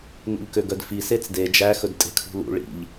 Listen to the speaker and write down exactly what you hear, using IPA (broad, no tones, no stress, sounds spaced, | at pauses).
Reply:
n ṵ ʎ k ø ɡ œ d f i s e t͡s d e d͡ʒ æ x ɵ d tʼ e̤ kʰ ṳ l ṵ ɭ ḭ ʎ